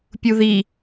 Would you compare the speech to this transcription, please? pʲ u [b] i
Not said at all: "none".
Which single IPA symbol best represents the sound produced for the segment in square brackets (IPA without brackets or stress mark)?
ð